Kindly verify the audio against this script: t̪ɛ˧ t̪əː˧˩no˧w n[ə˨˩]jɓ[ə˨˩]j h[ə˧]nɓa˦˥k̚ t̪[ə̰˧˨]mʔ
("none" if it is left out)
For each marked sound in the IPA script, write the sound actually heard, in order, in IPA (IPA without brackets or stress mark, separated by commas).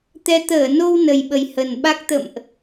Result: ə˨˩, ə˨˩, ə˨˩, ə̰˧˨